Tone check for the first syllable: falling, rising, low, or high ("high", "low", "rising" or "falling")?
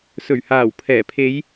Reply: low